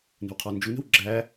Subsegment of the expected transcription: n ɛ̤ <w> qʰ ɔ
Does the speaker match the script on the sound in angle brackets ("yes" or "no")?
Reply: yes